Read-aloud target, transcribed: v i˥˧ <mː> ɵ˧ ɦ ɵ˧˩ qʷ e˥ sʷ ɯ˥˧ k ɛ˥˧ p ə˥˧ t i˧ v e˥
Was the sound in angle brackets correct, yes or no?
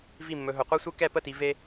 yes